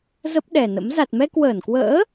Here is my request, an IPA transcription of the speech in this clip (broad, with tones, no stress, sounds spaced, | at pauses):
z ə˦˥ p̚ ɗ ɛ˨˩ n ə̰˧˥ m z a˨˩ t̚ m ɛ˧ k w əː˧˩ n k w ə̰ː˧˥